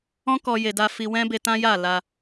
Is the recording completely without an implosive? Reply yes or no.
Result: yes